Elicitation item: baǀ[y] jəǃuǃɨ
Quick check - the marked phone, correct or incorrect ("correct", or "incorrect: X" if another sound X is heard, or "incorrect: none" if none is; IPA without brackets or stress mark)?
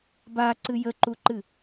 incorrect: ɨ